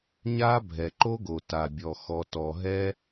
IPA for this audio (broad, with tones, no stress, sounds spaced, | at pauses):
ɲ a˦ bʱ ɛ˨ ǃ o˦ ɡ o˨ t a˨ bʲ ɔ˨ x ɔ˨ t ɔ˨ ɦ ɛ˧